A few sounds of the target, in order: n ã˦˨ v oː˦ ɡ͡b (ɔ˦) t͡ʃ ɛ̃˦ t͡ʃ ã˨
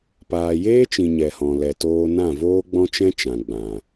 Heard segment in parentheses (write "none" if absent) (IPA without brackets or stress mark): ɔ̃˦